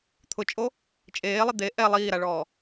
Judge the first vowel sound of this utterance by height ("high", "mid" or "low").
high